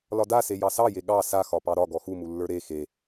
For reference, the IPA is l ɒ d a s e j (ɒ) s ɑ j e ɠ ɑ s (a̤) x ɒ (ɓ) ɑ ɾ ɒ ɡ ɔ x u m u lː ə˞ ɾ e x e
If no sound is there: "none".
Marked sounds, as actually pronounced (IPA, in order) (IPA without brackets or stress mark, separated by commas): ɑ, a, p